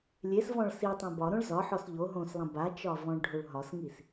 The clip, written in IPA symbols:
lʲ e s v ɔ̃ ɭ s i tˤ ẽ b ɒ ɾ õ ɭ z ɒ ħ ɔ s ʎ o ɦ õ s lˠ ɐ̃ b a t͡ʃ ɒ v ɔ̃ ɭ ɖʱ o ɭ ɦ ɒ s ŋ i s

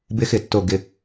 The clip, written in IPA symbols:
b ɪ˧˥ x ɪ˨˩˦ tː o˨˩ ɡ ɪ˨˩

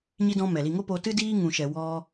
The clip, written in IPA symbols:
ɲ i˦ d ɔ̃˦ m ɛ˨ l i˧ ŋ o˦ p o˧ t ɨ˦ d iː˦ ŋ ũ˨ ʃ ɛ˨ w ɔ˦

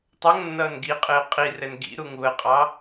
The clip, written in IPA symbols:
tˤ ʌ ŋ nː ʌː n ɡ i qʼ ɪː qʼ i r ɛ n ɡ ḭ ɾ u ŋ β ə qʼ ɑ

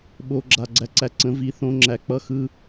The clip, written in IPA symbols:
ɓ oː˨ ɡ͡ǁ a˨ ɡ͡ǀ æ˧ ǀ æ˧ ǀ ə̃˨˦ v i˨˦ θ õ˦ ŋ͡ǁ æ˧ k͡p ʌ˦ x ɯ˦

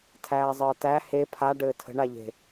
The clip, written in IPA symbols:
tʰ æː zˤ əː t æ h e pʰ a ɖ ɘː tʰ ə̤ ɳ a ʎ e̤

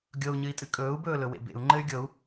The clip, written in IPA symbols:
ɡʲ ɤ u̯ ɲ ɨ i̯ tʼ ɨ kʼ ɵː u̯ b ɵː l ɵ w ḛ b ḛ u̯ ŋ͡ǃ ɘ y̯ ɡʲ ɤ u̯

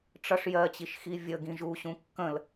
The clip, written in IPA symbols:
ʈ͡ʂ ʌ ʂ j ɜ t͡ɕ i ʃ x i vʲ ə ɡ ĩ ʒ u ɕ ũ kː ə̃ l

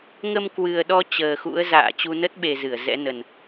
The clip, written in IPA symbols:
ŋ ə˧ m k w ɨ˨˩ ə̯ ɗ ɔ˧ t͡ɕ əː˨˩ x ṵ˧˥ ə̯ z a̰ː˧˨ t͡ɕ u˧ n ə˦˥ t̚ ɓ e˨˩ z ɨ˧˩ ə̯ z ɛ̰˧˥ n ə˨˩ n

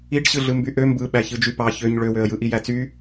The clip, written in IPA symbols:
i ɖ ɕ ɯ ɮ ɯ m b y ʔ ø m b ɯ ɓ æ ç ɯ d͡ʒ y p ɑ ç ø ɲ ɭ ø w ø ə̯ j ɯ ʔ i j æ t͡s y

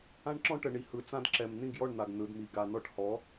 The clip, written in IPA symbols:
ã˥ ɳ ǁ ɔ̃˥ ʈ ə˩ ɳ i˩ h ɯ˩ t͡s ã˧ d ǁ ɛ˩ m n̪ ĩ˥˩ ɡ j ɔ˥˩ ɳ n̪ a˩ ɡ n ɯ˩ d m i˩ ɡ a˩ n ɔ˧ ʈ h ɔ˩˥

